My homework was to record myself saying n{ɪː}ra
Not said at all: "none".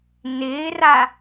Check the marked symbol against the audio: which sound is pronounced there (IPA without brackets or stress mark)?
ɪː